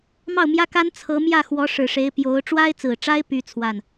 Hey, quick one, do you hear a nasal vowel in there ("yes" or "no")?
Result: no